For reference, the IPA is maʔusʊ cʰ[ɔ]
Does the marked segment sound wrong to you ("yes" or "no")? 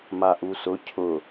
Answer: yes